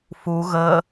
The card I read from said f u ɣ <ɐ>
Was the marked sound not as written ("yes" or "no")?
yes